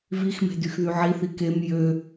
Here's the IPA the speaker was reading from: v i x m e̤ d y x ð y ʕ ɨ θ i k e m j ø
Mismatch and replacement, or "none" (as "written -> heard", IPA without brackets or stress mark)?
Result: ɨ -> i